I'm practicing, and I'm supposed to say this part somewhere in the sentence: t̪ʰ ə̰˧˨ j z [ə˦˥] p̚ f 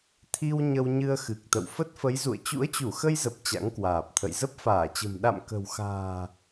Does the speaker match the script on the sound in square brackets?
yes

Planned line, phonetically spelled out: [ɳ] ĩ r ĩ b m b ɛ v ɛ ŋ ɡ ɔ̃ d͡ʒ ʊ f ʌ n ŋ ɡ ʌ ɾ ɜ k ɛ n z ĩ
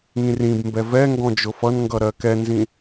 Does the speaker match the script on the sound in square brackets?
no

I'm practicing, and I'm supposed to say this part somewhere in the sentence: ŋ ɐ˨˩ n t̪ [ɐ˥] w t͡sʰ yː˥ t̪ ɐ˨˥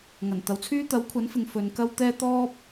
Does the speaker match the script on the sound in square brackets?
no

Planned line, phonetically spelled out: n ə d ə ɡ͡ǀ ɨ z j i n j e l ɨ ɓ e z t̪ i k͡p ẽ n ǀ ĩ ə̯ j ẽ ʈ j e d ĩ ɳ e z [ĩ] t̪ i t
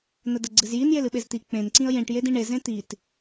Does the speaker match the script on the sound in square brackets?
no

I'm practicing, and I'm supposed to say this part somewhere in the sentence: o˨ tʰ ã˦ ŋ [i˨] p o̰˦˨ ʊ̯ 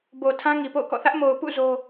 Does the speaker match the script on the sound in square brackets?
yes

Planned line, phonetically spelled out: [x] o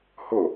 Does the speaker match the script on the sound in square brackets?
no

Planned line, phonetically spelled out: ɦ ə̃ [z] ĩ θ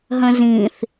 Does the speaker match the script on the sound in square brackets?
yes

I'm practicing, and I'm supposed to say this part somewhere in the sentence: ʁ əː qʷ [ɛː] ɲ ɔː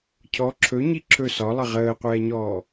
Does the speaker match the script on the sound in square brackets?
yes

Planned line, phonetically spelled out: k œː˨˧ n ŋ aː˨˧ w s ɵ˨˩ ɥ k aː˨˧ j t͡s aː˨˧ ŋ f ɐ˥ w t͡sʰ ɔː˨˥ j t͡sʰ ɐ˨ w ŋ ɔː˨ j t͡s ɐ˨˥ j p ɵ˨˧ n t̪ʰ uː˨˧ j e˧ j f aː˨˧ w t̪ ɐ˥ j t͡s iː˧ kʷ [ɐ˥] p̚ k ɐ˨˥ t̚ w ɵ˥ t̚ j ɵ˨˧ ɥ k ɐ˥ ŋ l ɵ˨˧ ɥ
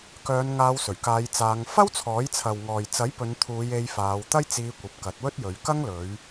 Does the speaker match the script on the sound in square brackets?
no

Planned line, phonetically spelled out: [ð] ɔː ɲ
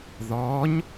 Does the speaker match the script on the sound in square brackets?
yes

